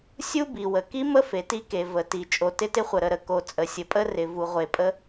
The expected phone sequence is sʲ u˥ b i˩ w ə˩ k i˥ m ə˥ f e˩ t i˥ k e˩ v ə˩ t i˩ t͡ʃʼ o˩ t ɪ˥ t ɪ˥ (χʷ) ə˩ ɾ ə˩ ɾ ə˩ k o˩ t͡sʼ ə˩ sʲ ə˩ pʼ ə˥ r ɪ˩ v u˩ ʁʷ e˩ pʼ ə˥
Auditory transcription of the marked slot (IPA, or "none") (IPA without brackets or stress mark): χʷ